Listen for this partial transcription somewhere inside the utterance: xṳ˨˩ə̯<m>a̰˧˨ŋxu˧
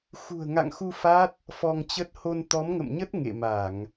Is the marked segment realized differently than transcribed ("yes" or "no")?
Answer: yes